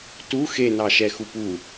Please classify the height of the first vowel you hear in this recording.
high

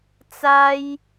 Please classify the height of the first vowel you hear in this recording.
low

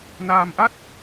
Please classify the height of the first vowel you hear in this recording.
low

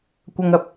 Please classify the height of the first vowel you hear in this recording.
low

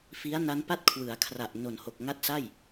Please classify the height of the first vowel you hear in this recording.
high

